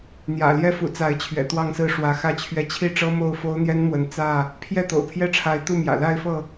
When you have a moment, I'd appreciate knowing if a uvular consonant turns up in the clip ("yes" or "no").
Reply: no